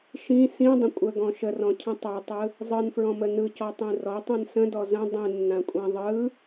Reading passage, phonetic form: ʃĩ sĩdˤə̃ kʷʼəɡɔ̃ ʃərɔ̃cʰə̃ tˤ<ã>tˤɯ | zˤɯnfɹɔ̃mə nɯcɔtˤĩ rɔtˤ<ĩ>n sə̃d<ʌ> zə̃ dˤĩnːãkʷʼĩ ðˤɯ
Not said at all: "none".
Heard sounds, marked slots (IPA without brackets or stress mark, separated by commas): a, ĩ, ɔ